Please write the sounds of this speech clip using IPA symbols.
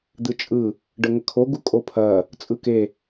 d̪ ɯ t͡ʃʼ ɯ | ɖ ə ŋ ə kʰ o ɡ u kʼ o pʰ ɐ | t͡sʼ ɯ k e

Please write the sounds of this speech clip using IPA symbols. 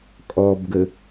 kʼ ɔ b ɡ ə

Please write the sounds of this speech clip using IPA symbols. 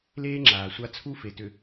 l eː˦ ŋ͡ǁ aː˨ sʷ a˦ t͡sʰ u˦ f e˨ t ʏ˨

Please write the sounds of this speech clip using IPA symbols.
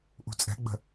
ʔ ṳ t͡sʼ ɛ̤ ɡ͡b ə̤

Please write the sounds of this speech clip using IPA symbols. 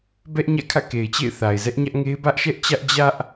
b ɛ˦ ʔ ɲ ä̰˦˨ kʰ ä̰˦˨ k e˨ ɪ̯ t͡ɕ ḛ˦˨ ɪ̯ θ a˨ ɪ̯ z ɛ˦ ʔ ɲ ä˦ ʔ ŋ e˦ ɪ̯ b ä˦ ʔ ʃ ɛ˦ ʔ t͡ɕ ä˦ ʔ d͡ʑ ä˦ ʔ

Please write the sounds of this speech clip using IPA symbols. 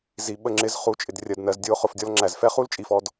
z i˨ ɓ ə˧ ŋ͡ǁ ɪ˨˦ z χ u˨ t͡ʃʼ ɪ˨ d rʲ ɜ˨ d n ɜ˨ z dʲ ʊː˧ χ ʊ˨ f dʲ ɔ˧ l ŋ͡ǁ æ˨ z f ɛ˦ χ u˦ l t͡ʃʼ i˨ f ɔ˧ d

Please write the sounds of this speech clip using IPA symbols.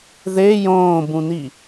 ð e j õː b ũ n i

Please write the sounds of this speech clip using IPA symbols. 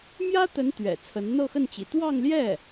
m j ä˥ t̪ ə˧˥ n t̪ ɥ ɛ̰˨˩ t͡sʰ ə˧˥ n n̪ ɤ˥˧ x ə˥˩ n t͡ɕ ḭ˨˩ t̪ w ɑ˥˧ ŋ l j ɛ˥˩

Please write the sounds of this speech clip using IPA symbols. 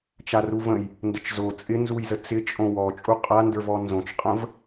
t͡ʃ a r u v ə̃ j | n d ə t͡ʃ z o t͡sʼ ɪ n z u j z ə t͡s ɪ t͡ʃʼ õ w ɔ t͡ʃʼ u qʼ a n d ə˞ v ɔ n z õ t͡ʃ qʼ ə̃ v

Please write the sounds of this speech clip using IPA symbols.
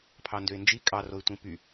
pʰ ɑ n d ø ɪ̯ n d͡ʒ i kʼ ɑ r o ɪ̯ tʷ ĩ p y

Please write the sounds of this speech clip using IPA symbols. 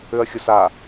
ʏ ɐ̯ xʲ ʊ s a

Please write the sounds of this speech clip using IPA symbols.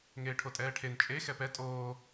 ŋ eː ʈʰ o tʼ ɛː ʈʰ e n t͡ʃʼ e x ɛ p ɛ tʼ oː

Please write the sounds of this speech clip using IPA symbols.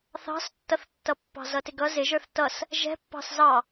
θ ɑ̤ s tː ʌ θ tː ʌ pː ɑ̤ z ʌ t ɪ ɡ ʌ z ɪ ʒ ə˞ θ t ʌ s | ʒ ɛ̤ pː ɑ̤ s z ɑ

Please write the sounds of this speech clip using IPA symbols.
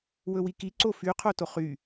w ɵ w i k i ǀ o f y qʰ o t o χ y

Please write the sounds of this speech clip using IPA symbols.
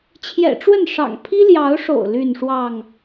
t͡ɕʰ j ɛ̰˨˩ ʈ͡ʂ w ə˥˨ n ʂ ɑ̰˨˩ ŋ pʰ i˦ l j ɑ˨˦ ʊ̯ ʂ o̰˨˩ ʊ̯ l y˥˨ n ʂ w ɑ˥˨ ŋ

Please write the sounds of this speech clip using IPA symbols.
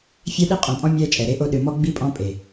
fʲ ɛ˦ ɗ i˦ qʼ õ˨ pʼ ɔ̃˦ mʲ ɛ˦ t͡ʃʼ ɛ˨ ɾ e˦ ʔ o˦ ɗ ɨ˨ m ɔ˦ ɡ͡b i˦ pʼ ɔ̃˦ pʼ e˨

